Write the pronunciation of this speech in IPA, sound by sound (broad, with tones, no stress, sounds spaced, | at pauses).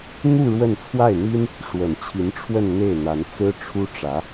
n̪ u˥˧ ɻ w ə˥˧ n t͡sʰ w a˥˩ ɪ̯ n̪ i˥ n | ʂ w ə˨˩ n t͡ɕʰ i˧˥ n ʈ͡ʂʰ w ə˥˧ n n̪ e˥˩ ɪ̯ n̪ a˧˥ n t͡s ɹ̩˥ ʈ͡ʂʰ u˥ ʈ͡ʂ ä˧˥